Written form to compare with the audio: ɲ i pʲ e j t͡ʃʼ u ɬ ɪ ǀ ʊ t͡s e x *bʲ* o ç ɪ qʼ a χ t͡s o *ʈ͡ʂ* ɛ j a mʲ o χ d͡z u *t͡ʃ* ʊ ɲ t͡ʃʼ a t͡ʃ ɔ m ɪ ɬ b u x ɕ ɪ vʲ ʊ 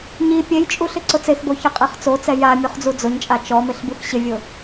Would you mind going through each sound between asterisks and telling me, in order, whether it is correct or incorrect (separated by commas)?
incorrect, incorrect, incorrect